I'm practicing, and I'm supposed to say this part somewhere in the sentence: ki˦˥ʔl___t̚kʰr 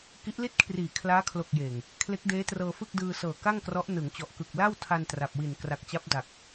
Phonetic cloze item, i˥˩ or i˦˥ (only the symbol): i˥˩